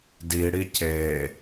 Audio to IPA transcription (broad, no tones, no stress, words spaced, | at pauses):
diɽi ce